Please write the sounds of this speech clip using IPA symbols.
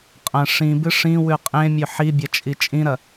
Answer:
qʼɐ̃ ʂĩbɨ ʂĩwʉ qʼẽmʲɵ ħibʲɐt͡ʃʼi t͡ʃʼĩɾɐ

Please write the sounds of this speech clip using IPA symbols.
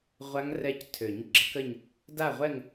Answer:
ʁʷa˦˥ŋrɛ˦˥ctʰø˨˩˦ɲ ɡ͡ǁə˩˥kə˥˧ɲ | da˥˧ʁʷɛ˥˧ŋ

